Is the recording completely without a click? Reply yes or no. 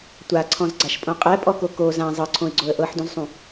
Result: no